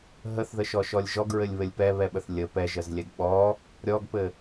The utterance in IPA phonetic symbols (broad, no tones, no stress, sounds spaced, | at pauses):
ɦ ə θ ð ə ʃ ɔ ʃ ɔ lʲ ʒ ɔ ɡ ɹ ɘ lʲ β ɘ lʲ p ɛ β ɛ ɓ ə θ lʲ ə p ɛ ʒ ə z lʲ ɛ ɡ ɓ ɔ | ɾʲ ɔ ɡ p ɘ